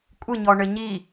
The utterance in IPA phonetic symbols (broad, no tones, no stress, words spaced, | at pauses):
kʷʼɨɲɔɳɘ ɲi